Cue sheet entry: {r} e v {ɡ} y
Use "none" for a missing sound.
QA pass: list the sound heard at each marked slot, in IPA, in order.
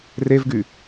r, ɡ

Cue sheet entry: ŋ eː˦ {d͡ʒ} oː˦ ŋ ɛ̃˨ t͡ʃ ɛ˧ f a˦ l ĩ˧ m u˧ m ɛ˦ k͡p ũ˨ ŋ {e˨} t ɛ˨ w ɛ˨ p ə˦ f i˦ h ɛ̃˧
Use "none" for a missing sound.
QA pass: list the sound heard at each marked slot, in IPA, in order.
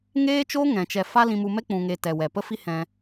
t͡ʃ, e˨

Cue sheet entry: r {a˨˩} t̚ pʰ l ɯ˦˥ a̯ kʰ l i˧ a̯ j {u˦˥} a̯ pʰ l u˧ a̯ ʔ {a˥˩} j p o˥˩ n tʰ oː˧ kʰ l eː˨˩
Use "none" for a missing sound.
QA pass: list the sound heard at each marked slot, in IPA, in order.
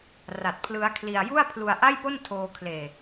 a˨˩, u˥˩, a˥˩

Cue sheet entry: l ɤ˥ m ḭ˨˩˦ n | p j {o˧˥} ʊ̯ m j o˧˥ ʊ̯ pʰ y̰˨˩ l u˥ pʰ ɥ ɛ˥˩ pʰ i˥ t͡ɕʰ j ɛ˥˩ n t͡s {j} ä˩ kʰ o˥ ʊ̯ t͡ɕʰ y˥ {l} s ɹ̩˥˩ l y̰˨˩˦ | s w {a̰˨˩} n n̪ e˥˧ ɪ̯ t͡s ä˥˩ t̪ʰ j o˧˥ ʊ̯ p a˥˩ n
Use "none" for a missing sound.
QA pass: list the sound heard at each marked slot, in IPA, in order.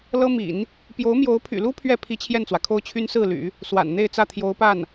o˧˥, w, n, a̰˨˩

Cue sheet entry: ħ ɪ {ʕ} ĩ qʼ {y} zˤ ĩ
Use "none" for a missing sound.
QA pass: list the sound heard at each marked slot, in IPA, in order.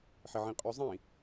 ʕ, y

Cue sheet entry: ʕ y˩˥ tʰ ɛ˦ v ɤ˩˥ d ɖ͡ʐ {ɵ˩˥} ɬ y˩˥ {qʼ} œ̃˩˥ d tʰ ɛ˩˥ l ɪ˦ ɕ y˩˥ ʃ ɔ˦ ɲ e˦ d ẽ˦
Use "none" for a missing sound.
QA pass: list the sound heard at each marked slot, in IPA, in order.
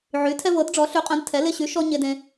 ɔ˩˥, qʼ

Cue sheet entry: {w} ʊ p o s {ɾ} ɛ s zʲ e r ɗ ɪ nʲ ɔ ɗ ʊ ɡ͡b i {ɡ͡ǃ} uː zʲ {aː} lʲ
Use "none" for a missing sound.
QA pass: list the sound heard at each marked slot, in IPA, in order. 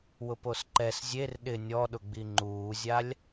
w, ǃ, ŋ͡ǃ, a

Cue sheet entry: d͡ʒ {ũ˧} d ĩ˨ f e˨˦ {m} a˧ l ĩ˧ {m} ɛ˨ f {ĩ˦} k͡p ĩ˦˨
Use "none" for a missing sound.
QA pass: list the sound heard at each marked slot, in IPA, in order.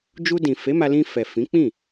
u˧, m, f, ĩ˨˦

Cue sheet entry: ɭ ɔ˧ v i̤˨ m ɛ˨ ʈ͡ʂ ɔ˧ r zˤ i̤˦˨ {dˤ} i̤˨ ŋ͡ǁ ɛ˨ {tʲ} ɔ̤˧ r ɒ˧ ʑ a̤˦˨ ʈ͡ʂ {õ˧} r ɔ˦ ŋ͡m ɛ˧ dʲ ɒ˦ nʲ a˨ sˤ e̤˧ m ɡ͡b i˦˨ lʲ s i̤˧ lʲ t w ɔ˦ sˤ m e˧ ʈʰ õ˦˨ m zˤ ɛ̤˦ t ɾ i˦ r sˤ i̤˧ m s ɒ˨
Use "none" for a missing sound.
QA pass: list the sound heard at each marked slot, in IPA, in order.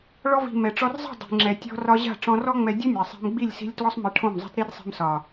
dˤ, tʲ, ɔ̃˧

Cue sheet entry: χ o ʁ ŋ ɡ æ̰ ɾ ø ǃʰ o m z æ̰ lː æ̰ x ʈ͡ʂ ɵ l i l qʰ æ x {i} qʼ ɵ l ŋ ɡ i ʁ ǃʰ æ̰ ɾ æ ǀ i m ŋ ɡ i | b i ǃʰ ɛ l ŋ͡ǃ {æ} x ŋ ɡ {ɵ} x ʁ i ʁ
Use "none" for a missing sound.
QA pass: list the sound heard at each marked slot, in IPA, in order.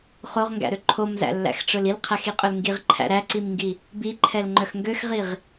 i, œ, ø

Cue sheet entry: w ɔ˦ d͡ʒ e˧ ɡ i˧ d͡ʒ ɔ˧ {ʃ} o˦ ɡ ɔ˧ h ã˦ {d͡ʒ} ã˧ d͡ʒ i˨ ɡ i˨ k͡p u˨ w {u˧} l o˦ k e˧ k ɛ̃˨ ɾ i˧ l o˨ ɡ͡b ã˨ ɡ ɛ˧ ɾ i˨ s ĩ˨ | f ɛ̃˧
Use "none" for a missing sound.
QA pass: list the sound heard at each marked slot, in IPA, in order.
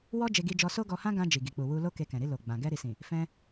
s, ɡ, u˧

